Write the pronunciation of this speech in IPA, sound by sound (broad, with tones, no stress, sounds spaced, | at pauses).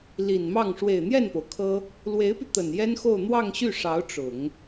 l i˨˩ n m ɑ˥˩ ŋ ʂ w e˨˩ ɪ̯ n̪ j ɛ˥˩ n p o˩ ʊ̯ kʰ ɤ˥ | l w e˧˥ ɪ̯ p y˧ t̪ ə˨˩ n j ɛ˥ n x o˥˧ ʊ̯ n̪ w ɑ˥˧ ŋ ɕ y˥˩ ʂ ɑ˧˥ ʊ̯ ʈ͡ʂ ʊ˨˩˦ ŋ